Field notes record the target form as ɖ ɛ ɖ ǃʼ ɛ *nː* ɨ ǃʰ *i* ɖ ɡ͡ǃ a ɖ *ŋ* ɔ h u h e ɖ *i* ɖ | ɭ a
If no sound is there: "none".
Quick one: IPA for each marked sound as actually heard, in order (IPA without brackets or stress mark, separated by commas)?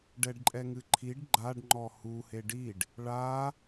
ŋ, i, ŋ͡ǃ, i